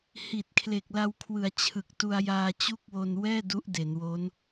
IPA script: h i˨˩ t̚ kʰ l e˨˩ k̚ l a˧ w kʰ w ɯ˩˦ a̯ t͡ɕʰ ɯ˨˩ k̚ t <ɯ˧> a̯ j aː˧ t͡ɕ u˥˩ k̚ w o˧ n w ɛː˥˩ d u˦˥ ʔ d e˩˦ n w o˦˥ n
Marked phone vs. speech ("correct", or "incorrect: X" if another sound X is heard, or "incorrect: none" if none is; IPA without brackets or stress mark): incorrect: u˧